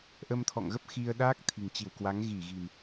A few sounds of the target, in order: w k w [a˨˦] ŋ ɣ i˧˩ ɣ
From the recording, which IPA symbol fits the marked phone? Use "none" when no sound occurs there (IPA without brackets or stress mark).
a˨˦